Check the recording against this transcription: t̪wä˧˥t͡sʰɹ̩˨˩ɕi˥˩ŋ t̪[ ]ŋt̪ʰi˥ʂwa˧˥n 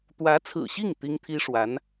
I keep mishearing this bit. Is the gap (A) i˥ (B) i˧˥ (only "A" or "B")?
A